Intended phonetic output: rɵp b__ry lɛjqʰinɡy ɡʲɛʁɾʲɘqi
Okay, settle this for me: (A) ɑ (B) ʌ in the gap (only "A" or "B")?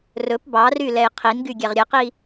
A